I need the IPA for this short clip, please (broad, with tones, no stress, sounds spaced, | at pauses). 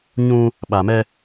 ɲ ũ˦ | ɓ a˨ m ɛ˦